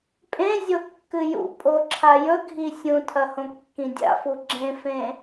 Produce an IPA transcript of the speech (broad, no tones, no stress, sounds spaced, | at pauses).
pʼ ẽ zʲ o kː ɨ j ṵ pʼ o ǁʰ a j ɵ ɡʱ i sʲ ũ tʰ ɐ h õ kː ĩ dʲ a̰ f u ɡ͡ǁ ẽ f ẽ